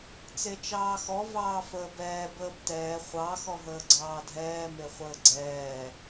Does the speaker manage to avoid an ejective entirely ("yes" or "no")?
yes